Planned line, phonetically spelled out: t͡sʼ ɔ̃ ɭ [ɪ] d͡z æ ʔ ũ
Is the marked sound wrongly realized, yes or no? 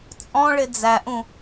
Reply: no